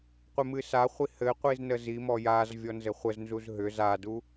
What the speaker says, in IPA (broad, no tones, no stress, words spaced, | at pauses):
qʷɪmɨsaχʷi hɘqʷiz nəzimɔ jaz vʲɔnzɘχʷəznzuz ɦʏ zadu